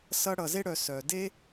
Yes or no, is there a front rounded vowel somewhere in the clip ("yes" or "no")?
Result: yes